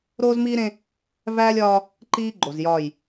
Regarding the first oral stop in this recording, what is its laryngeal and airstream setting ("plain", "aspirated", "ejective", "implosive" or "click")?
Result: click